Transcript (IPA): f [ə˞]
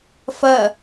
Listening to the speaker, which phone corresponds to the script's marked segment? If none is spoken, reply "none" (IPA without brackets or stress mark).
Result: ɐ